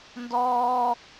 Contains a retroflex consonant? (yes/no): no